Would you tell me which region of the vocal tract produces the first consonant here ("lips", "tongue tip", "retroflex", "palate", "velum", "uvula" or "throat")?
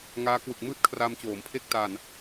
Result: velum